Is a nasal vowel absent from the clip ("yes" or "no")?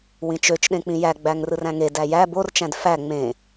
no